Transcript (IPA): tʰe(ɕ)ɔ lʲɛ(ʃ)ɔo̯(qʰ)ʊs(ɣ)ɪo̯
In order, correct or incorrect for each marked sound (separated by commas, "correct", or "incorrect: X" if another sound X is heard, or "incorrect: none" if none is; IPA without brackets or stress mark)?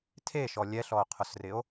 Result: incorrect: ʃ, incorrect: ɬ, correct, incorrect: r